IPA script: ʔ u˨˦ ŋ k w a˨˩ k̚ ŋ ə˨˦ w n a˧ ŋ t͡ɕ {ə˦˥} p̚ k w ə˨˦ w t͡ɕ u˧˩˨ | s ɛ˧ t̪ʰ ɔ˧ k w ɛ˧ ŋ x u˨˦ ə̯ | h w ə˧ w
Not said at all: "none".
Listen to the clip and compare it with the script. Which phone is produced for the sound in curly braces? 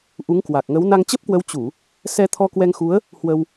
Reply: ə˦˥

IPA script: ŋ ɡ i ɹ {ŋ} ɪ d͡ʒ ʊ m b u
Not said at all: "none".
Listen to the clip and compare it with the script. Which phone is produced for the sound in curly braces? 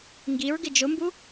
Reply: ɡ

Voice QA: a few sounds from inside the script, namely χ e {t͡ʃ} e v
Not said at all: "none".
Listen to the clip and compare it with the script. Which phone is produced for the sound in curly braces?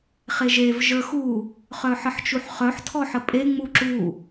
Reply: ʒ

